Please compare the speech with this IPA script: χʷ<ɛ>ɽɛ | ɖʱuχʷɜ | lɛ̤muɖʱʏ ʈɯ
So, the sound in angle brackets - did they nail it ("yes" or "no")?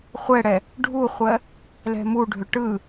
yes